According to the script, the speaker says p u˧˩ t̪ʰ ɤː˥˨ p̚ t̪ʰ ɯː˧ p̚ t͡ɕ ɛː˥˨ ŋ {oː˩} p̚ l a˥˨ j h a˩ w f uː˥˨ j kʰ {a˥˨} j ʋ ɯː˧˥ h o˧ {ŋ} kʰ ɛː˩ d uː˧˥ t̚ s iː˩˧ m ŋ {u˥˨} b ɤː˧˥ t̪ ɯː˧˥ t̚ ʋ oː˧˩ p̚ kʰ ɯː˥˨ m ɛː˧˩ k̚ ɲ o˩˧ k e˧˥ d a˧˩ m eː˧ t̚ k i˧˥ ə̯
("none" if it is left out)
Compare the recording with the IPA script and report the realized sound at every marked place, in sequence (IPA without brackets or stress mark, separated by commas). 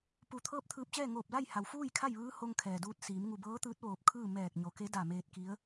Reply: oː˧˩, a˥˨, ŋ, u˧˩